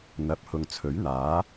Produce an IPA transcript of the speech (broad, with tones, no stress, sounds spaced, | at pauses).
n̪ ɐ˨˥ p̚ h ʊ˨ ŋ t͡sʰ ɵ˨˥ ɥ n̪ aː˨˥